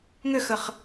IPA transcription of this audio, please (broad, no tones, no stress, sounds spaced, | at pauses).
ŋ ʏ x ə χ